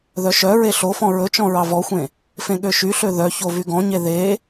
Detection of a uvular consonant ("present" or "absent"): absent